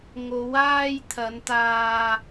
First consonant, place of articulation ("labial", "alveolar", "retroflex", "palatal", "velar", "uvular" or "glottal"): velar